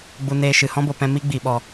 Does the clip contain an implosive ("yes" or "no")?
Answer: yes